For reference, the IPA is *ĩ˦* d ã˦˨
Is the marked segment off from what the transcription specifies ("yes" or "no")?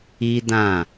yes